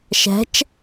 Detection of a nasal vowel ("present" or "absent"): absent